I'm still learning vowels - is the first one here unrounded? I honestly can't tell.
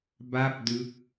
yes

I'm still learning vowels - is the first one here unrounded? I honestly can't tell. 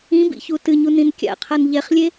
yes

